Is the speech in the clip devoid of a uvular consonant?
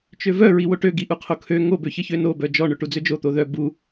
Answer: no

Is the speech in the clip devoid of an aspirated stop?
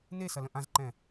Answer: yes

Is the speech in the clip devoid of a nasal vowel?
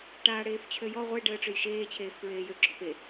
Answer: yes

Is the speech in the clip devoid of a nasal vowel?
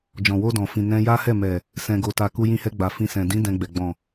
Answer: no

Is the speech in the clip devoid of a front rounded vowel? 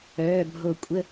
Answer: no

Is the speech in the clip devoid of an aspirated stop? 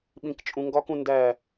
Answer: yes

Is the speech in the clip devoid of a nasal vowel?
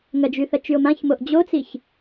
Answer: no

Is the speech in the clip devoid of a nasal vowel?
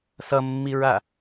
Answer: yes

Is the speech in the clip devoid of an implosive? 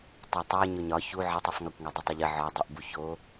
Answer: yes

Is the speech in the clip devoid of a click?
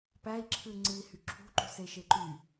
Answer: no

